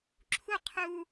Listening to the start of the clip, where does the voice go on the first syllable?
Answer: high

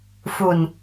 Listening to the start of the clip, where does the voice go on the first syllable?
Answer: low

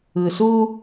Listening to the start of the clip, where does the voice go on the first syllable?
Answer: low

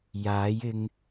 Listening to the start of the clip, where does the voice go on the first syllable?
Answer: rising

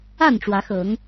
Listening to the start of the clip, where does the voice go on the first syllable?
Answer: falling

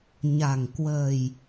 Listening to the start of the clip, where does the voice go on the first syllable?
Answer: low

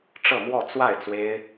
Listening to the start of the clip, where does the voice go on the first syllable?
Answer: falling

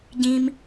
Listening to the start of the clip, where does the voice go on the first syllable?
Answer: high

